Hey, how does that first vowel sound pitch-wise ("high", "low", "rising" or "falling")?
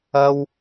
high